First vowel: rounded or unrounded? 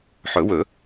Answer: rounded